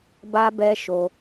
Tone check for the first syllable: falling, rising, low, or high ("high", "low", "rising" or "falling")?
high